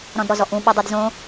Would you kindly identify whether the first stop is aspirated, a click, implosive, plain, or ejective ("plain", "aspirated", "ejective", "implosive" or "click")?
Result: plain